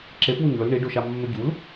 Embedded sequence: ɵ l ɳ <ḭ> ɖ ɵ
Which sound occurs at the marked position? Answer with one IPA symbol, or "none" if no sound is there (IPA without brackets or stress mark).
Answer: i